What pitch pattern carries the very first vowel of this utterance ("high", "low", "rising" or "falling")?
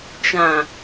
low